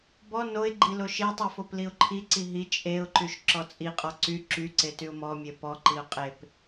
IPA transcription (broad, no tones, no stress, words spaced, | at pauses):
bɔ noɪ̯ɡ͡ǃi loʃetˤy fopliʊ̯ǃʰiǀi ɦi t͡ʃʼeʊ̯ǃyʃ ǁɔt͡sʼiqʼɔ ǀy ǁyǀe tyʊ̯mɔmʲe pɔǃiʊ̯ qʼep